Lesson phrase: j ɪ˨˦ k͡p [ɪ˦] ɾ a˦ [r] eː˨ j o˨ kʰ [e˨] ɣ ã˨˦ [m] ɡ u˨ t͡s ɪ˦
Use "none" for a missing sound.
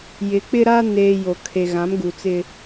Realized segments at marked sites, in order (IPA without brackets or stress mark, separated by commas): ɪ˦, n, e˨, m